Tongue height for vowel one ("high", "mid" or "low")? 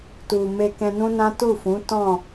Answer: high